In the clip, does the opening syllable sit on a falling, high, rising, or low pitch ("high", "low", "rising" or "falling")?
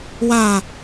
low